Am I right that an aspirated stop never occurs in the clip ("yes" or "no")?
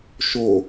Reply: yes